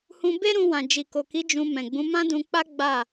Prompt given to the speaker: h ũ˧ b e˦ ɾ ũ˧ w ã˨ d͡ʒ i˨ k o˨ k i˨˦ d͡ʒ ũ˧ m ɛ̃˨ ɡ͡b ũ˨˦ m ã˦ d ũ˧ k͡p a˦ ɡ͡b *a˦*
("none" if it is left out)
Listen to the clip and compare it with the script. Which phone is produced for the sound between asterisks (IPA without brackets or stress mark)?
a˦˨